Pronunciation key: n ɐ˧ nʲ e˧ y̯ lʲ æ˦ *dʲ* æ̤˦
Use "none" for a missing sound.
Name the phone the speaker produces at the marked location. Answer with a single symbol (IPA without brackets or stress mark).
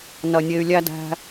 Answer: d